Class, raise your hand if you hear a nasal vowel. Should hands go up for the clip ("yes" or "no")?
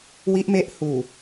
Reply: no